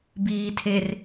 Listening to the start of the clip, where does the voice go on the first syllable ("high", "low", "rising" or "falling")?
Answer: low